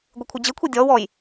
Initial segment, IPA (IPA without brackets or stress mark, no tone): ɡʷ